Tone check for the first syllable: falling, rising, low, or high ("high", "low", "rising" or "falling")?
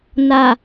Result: low